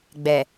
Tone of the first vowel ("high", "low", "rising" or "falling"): low